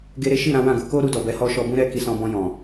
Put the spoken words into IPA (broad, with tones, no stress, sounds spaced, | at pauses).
ɡ e˧ ɾ e˦ ʃ i˦˨ ɾ ã˨˦ w ã˦˨ ɡ u˨˦ k o˦ ɾ u˧ d ɔ˨ b ɛ˨˦ h ɔ˦ ʃ ɔ˧ b ũ˦ ɾ ɛ˦ k i˧ s ɔ̃˧ b ɔ̃˧ j ɔ̃˨